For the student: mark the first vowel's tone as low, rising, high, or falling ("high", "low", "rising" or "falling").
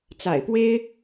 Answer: low